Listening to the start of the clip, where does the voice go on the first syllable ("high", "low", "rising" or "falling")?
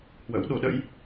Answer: rising